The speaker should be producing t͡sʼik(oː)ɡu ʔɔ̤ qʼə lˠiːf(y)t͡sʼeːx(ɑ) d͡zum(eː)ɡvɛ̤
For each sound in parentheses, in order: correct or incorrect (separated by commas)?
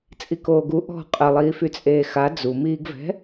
correct, correct, incorrect, incorrect